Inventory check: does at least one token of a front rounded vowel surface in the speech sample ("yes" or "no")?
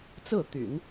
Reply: yes